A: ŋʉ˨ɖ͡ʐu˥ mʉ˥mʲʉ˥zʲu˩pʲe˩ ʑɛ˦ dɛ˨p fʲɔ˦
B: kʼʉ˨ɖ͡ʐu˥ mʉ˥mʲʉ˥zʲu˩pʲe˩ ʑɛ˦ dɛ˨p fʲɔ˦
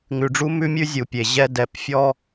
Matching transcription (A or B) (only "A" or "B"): A